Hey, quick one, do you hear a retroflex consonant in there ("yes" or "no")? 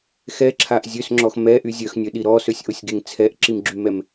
no